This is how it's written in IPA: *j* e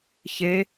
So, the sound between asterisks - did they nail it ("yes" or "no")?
no